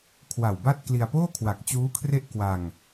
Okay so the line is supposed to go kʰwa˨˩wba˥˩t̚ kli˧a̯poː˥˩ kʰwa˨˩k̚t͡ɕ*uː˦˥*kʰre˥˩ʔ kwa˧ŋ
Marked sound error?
no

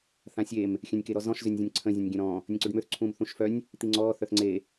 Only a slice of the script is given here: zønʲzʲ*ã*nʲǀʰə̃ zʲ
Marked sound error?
yes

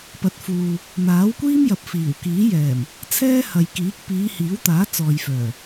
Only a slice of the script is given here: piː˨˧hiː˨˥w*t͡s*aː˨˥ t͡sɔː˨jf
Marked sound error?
yes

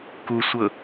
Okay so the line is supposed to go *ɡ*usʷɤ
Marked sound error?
yes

